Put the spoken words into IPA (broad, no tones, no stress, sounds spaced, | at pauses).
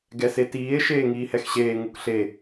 ɡ ɛ s e t iː e̯ ʃ eː ŋ iː h ɛ x ɕ eː ŋ u k ɬ e